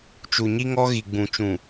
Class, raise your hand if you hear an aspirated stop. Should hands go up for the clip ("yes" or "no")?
no